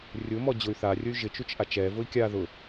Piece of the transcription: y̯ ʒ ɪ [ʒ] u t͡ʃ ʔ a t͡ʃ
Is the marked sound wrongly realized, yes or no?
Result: yes